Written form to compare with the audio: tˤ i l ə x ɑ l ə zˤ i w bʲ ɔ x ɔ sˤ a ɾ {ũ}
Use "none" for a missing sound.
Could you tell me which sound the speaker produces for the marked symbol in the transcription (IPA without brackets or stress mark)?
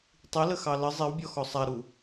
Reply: u